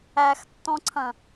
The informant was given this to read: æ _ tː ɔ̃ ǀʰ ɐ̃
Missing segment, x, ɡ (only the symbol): x